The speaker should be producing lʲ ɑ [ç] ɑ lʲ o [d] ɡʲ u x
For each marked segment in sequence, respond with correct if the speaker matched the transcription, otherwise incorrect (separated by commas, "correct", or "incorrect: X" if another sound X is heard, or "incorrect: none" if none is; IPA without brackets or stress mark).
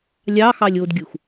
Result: incorrect: x, correct